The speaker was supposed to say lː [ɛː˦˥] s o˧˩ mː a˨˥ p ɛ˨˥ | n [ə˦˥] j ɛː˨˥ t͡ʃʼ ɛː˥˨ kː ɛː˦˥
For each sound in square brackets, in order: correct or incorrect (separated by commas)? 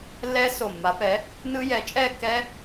correct, incorrect